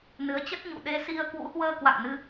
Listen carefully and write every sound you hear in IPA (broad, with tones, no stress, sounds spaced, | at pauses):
n ɨ˨˦ ə̯ t͡ɕ ə˦˥ t̚ ɲ ṵ˧˨ ɗ e˧ s i˧ ə̯ k w ṵ˧˥ h w əː˧ k w a̰˧˨ ŋ n ɨ˧